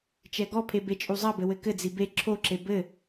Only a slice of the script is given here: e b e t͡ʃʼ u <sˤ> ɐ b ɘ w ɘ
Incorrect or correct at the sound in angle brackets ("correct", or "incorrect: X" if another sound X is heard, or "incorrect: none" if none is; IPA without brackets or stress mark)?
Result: incorrect: zˤ